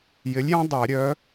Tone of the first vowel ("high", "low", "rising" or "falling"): rising